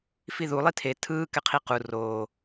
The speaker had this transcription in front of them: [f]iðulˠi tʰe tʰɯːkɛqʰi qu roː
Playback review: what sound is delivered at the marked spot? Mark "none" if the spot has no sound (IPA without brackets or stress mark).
f